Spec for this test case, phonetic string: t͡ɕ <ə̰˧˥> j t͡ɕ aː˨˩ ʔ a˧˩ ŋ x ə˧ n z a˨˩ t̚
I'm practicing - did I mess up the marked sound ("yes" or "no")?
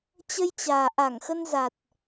yes